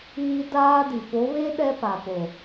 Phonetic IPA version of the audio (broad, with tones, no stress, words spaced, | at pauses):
iː˦daː˦di˨ fo˨˦βe˦ ɗɛ˦pa˨po˨